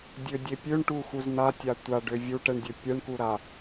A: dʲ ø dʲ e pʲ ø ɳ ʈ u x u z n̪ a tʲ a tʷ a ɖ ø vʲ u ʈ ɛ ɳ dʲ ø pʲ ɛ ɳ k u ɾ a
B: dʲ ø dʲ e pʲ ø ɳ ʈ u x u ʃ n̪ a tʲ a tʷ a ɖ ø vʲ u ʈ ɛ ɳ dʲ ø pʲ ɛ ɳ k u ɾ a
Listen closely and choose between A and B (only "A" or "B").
A